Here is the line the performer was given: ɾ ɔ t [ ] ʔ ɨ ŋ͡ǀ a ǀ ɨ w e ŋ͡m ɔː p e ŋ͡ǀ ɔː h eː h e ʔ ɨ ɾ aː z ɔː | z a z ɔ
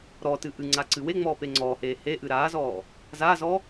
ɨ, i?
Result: ɨ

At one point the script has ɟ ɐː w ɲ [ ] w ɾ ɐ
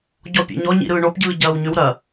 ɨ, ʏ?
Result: ʏ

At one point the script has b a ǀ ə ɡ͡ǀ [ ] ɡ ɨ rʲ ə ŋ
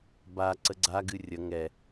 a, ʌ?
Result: a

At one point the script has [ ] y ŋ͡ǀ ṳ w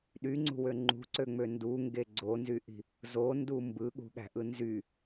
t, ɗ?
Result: ɗ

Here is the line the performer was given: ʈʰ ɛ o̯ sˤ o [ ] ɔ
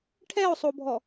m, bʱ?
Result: bʱ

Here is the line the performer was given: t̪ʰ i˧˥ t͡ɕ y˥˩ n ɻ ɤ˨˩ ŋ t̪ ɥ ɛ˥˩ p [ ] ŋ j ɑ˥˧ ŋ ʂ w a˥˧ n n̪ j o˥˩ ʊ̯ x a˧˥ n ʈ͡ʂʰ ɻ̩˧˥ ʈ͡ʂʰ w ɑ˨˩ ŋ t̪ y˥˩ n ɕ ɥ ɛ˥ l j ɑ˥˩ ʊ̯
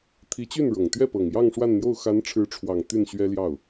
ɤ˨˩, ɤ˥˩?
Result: ɤ˨˩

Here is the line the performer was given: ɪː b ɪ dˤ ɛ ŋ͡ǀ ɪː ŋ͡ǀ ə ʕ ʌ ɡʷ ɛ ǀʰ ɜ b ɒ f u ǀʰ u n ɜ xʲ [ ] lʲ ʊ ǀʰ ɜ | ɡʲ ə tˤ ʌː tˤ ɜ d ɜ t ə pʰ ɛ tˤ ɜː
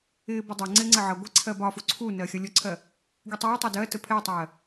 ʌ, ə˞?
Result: ʌ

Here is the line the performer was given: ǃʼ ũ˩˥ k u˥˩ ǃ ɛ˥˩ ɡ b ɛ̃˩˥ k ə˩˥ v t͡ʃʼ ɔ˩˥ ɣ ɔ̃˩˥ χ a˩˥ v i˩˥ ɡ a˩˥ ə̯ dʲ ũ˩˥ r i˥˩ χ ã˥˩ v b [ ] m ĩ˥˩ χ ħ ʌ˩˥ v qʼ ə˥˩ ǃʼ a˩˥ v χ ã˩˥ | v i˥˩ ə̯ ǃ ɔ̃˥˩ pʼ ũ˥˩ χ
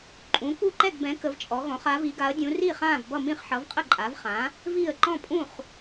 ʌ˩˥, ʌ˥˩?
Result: ʌ˥˩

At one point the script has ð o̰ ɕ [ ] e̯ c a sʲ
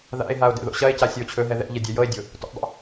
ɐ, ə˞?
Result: ɐ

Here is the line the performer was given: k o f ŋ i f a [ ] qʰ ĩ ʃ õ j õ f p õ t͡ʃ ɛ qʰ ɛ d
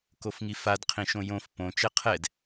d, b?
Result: d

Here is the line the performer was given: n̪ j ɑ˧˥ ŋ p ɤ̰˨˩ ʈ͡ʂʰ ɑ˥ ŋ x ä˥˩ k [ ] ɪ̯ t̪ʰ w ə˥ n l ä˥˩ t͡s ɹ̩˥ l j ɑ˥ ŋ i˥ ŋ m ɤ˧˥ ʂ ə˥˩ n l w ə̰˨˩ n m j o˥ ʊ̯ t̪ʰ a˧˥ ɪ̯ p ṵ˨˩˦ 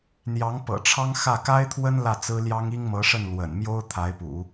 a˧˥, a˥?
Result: a˥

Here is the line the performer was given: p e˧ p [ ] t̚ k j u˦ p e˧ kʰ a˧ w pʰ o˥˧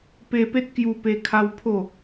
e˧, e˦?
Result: e˦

